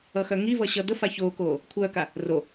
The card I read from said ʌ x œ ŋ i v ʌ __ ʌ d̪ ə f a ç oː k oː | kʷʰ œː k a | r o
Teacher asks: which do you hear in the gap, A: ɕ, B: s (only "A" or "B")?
A